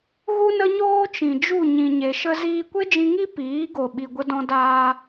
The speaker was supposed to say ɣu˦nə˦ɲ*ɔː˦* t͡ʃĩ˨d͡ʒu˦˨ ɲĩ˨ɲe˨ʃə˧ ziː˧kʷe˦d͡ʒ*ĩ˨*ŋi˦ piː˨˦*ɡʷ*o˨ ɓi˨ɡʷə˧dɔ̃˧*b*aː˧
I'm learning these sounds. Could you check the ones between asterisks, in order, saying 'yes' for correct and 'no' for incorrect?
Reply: no, no, no, no

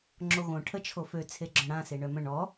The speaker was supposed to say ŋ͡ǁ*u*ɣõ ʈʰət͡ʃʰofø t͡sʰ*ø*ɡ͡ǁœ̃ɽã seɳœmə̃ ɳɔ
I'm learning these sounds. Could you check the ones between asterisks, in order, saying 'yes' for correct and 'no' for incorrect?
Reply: no, no

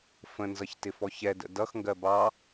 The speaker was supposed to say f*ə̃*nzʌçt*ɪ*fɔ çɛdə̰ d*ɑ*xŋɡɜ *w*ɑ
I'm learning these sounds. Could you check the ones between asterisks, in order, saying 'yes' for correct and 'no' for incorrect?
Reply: yes, yes, no, no

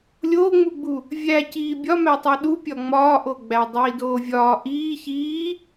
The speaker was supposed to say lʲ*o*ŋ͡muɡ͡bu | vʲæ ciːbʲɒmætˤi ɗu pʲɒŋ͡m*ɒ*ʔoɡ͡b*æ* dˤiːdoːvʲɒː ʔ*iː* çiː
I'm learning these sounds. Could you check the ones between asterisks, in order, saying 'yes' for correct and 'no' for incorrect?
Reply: no, no, yes, yes

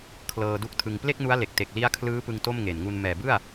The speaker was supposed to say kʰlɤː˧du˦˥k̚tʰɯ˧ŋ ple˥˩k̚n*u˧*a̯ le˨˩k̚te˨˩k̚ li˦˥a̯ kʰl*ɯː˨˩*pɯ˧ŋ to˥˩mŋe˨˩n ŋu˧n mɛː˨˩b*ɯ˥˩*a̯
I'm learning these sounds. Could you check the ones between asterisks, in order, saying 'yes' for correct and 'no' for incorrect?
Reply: no, no, yes

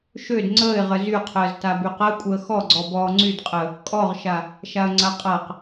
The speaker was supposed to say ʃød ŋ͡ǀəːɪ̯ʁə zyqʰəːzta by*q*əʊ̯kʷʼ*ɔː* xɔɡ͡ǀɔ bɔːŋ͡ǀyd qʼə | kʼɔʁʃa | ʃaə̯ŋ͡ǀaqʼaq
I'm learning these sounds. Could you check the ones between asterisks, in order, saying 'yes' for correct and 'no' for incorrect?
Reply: yes, no

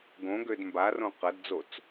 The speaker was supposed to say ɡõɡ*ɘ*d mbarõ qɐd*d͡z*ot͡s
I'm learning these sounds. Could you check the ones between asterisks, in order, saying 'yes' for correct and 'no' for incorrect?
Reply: no, yes

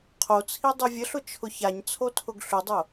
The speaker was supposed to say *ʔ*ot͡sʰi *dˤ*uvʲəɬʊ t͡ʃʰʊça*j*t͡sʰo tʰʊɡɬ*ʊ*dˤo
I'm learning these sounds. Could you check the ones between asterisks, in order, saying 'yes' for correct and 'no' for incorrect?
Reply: no, yes, no, yes

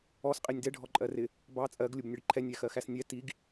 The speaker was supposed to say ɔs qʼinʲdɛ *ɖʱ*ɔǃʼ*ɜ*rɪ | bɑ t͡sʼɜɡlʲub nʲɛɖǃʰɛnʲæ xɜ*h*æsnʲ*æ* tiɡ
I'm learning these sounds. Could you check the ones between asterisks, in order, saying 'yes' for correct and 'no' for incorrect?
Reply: yes, yes, no, no

